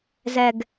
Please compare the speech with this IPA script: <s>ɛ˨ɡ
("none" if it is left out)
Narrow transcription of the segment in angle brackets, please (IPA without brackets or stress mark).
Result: z